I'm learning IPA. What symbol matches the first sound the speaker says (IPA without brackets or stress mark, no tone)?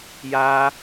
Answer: j